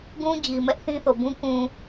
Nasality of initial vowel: nasal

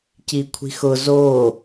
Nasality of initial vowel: oral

